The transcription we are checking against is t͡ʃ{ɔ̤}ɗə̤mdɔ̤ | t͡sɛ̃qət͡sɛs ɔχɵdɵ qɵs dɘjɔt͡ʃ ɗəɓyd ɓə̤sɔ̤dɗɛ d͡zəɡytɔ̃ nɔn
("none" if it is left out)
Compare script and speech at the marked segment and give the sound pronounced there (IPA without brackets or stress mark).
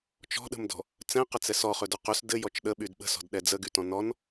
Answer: ɔ̤